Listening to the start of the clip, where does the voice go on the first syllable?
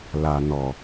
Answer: low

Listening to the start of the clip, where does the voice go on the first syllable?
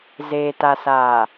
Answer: low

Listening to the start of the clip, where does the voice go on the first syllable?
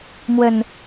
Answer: low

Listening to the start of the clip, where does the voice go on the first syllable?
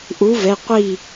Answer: rising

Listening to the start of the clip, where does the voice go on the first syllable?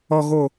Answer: low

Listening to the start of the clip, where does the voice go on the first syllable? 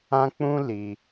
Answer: high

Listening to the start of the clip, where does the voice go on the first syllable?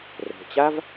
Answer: low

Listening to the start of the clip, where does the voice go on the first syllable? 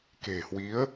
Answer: low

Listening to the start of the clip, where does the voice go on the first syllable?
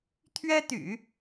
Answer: high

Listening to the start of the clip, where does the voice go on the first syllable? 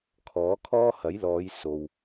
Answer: rising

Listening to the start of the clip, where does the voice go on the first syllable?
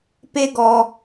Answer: high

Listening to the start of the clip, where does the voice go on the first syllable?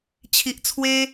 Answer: low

